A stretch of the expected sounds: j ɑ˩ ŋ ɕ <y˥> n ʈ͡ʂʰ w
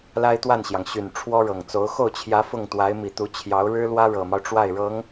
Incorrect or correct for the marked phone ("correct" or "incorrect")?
incorrect